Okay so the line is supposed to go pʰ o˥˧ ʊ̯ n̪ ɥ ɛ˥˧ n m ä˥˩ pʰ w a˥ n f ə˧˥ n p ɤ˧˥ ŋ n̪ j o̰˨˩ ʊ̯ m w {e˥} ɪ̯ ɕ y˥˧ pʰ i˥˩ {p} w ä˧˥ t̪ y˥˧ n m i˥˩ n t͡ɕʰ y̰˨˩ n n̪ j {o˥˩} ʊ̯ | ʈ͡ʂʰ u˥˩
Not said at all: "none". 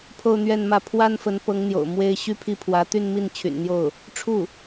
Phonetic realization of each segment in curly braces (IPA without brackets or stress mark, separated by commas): e˥, pʰ, o˥˩